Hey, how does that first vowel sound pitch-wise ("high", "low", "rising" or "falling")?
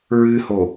high